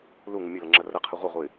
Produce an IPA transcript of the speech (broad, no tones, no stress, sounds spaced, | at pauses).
l u ŋ ɨ mʲ ɵ l ɐ ŋ͡ǁ ɐ r ɐ qʰ ɨ ʁʷ ɐ ʁʷ ɨ ɪ̯